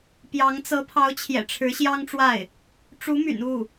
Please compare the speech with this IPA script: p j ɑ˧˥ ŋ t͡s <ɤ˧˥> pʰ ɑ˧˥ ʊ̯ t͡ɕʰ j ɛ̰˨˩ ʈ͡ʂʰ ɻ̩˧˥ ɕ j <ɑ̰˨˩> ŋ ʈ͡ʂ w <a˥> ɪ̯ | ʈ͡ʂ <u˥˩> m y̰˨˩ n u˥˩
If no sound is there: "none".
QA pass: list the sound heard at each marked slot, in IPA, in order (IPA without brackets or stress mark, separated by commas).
ɤ˧˥, ɑ˥, a˥˩, u˧˥